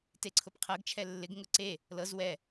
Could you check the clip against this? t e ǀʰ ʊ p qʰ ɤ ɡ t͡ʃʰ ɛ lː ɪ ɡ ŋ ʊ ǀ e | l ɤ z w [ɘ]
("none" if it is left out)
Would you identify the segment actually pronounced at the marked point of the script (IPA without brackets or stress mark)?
ɛ